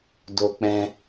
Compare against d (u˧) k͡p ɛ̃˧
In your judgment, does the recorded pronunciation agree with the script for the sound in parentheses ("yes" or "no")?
no